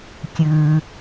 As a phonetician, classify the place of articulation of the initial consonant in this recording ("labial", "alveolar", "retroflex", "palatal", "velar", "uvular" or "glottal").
velar